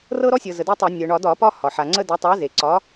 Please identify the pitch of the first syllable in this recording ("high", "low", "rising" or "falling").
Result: high